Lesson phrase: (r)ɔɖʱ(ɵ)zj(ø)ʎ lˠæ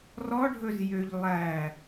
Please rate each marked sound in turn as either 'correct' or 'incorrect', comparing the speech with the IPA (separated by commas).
correct, correct, correct